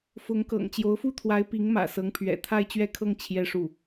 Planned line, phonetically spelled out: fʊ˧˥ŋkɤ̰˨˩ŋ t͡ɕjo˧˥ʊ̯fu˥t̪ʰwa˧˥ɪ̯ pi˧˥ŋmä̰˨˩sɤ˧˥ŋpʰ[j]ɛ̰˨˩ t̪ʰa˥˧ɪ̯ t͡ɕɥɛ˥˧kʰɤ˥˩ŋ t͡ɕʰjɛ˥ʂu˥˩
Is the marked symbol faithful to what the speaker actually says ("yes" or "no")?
no